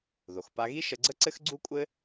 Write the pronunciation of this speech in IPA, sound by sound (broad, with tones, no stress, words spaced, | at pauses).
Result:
ðo˩xpa˧ɣi˥ ʃə˧ɡ͡ǀə˥ǀɘ˥xɡ͡ǀu˥ kʷʼɘ˥